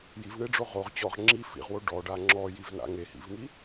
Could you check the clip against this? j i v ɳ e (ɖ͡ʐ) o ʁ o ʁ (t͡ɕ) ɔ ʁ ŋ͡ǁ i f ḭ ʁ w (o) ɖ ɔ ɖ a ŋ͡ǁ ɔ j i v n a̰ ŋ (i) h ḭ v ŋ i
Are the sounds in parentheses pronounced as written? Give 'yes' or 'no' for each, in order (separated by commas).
yes, yes, yes, no